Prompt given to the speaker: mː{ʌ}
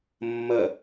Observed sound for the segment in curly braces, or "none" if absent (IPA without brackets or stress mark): ʌ